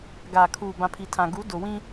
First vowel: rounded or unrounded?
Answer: unrounded